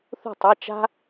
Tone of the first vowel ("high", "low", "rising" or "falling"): falling